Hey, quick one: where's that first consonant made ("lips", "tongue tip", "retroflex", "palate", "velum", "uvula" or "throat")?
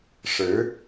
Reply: retroflex